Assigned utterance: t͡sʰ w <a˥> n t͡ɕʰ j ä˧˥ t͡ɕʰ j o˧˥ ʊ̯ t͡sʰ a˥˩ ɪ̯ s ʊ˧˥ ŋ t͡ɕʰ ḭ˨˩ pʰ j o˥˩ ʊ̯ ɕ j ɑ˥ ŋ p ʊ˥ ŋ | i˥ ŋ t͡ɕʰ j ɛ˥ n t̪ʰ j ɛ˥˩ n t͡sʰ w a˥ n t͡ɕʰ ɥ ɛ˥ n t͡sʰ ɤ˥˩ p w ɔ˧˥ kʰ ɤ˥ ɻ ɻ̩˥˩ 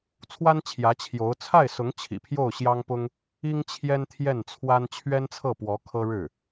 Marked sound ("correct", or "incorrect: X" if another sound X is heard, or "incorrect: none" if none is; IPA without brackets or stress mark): correct